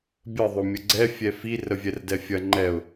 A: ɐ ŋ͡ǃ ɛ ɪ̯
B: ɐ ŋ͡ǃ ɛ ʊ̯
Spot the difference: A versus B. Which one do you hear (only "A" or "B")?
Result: B